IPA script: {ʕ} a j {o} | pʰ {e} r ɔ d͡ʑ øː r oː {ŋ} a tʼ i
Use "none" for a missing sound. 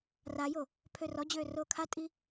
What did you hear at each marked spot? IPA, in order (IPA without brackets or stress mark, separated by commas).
r, o, ø, kʰ